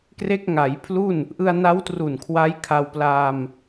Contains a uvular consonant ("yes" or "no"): no